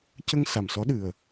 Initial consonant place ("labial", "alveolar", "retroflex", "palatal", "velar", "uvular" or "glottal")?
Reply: palatal